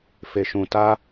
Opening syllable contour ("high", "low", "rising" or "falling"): low